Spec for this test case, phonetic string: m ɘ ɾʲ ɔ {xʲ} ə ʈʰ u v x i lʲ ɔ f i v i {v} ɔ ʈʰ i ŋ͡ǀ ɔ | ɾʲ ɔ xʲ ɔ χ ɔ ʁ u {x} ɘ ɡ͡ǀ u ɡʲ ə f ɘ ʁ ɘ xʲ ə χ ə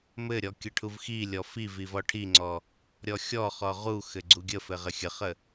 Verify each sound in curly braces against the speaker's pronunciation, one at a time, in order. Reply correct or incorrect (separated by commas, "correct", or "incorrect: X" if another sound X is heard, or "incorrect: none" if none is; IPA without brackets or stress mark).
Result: incorrect: kʲ, correct, correct